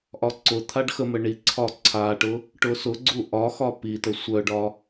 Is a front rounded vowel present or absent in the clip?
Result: present